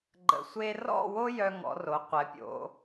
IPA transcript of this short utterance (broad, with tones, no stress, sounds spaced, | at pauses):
ɡ͡ǃ ə̰˧ sʷ e˥ r ɔ̰˥˧ w o˥ j œ˧ ŋ ɔ̰˩˧ r o˩˧ qʷ ɛ˩˧ pʲ o̰˩˧